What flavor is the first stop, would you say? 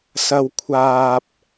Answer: aspirated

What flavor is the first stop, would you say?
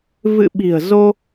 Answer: implosive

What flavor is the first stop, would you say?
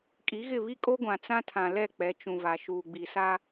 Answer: ejective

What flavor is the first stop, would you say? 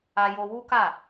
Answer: plain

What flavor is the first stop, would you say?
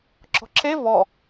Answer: click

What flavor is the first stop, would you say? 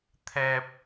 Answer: aspirated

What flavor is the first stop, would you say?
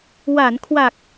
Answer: aspirated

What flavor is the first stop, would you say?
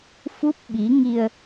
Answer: plain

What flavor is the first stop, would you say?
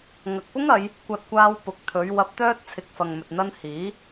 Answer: plain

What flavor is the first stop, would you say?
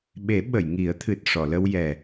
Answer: implosive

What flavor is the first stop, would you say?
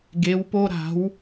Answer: plain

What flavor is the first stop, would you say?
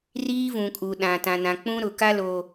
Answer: ejective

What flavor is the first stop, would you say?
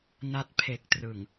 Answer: plain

